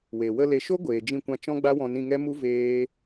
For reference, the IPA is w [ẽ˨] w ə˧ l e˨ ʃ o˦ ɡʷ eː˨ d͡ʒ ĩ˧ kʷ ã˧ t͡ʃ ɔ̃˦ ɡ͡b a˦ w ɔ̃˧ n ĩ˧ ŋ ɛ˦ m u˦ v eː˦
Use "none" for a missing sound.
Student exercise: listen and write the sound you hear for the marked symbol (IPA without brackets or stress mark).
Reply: e˨